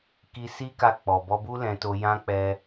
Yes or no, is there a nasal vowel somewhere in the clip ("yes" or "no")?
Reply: yes